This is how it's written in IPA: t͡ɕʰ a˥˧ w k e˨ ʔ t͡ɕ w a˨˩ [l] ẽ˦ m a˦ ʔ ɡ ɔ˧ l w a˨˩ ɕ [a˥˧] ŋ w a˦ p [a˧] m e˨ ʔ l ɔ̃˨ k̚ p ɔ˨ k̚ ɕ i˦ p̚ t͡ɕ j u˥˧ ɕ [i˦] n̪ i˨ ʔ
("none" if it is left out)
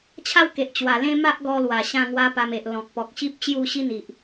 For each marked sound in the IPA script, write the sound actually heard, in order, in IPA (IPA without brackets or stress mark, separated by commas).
l, ã˥˧, a˧, i˦